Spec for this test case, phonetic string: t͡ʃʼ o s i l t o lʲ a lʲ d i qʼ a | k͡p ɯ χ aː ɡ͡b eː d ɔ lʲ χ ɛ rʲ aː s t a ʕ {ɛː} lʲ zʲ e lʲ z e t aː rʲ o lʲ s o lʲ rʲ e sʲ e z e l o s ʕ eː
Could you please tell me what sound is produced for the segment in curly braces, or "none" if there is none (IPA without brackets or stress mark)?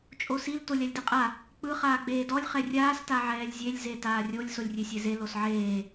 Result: ɛː